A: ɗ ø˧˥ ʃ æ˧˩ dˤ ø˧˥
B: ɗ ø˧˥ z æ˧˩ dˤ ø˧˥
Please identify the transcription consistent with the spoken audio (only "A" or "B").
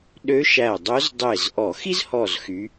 A